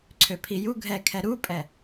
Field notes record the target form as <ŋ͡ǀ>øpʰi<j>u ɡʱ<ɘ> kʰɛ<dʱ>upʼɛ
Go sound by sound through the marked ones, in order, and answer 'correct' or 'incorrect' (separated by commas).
incorrect, correct, incorrect, incorrect